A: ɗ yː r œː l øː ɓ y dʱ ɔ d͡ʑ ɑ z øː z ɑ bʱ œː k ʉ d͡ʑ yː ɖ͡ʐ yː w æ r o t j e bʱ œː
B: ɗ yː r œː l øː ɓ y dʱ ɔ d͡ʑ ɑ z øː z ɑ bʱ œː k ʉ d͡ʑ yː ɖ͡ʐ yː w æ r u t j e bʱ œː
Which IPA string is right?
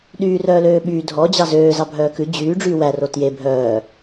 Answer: A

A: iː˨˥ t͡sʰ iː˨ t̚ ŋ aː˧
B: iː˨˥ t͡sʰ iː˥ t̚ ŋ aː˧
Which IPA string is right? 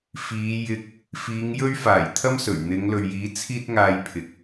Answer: B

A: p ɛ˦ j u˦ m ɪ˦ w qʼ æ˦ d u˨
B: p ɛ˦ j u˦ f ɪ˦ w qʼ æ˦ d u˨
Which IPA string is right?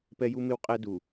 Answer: A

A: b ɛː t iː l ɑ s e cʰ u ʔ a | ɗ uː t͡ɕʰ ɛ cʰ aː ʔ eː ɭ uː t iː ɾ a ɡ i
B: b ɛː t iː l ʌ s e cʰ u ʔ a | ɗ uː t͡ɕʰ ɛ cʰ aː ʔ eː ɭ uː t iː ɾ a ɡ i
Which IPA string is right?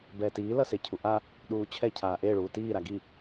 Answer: B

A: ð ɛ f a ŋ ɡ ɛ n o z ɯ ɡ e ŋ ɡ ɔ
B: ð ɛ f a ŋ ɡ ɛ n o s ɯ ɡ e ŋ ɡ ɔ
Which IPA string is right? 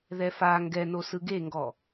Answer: B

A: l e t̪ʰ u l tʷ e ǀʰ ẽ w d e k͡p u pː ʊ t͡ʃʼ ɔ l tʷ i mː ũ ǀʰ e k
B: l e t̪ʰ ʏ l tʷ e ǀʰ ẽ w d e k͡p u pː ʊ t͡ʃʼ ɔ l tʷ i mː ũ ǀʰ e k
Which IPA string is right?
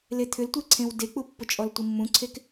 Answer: B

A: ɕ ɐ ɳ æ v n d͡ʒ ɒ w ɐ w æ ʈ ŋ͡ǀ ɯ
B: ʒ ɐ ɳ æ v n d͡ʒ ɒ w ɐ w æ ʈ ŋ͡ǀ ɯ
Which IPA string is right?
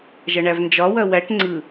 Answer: B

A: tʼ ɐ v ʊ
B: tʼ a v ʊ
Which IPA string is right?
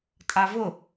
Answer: B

